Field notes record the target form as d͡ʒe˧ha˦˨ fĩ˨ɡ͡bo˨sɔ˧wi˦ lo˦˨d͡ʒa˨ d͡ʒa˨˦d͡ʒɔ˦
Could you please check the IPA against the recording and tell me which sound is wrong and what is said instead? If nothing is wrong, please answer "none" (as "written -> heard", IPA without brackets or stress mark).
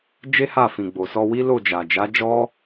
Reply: e˧ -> e˦